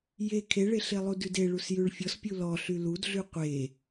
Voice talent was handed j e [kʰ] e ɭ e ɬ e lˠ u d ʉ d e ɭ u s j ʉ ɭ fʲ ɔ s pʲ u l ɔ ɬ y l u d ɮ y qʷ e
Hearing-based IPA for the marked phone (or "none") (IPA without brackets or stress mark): kʰ